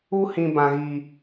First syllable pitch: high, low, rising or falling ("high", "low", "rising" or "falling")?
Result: high